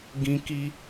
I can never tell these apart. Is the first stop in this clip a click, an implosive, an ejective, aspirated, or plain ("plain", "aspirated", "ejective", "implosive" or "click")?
plain